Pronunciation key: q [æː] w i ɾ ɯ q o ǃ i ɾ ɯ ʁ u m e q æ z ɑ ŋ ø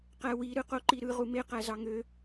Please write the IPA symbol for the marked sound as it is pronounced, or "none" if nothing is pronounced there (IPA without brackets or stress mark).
æ